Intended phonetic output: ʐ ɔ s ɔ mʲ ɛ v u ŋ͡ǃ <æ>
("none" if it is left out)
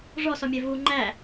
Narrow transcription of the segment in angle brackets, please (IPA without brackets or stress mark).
æ